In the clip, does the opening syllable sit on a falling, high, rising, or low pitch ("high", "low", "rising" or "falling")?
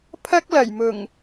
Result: high